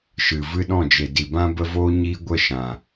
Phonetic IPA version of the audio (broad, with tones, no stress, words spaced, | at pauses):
ʃɨ˨vɨ˦ɗɔ̃˦˨d͡ʒe˨ di˨bã˦ bə˦voː˦ ɲiː˦ɡʷə˦˨ ʃã˨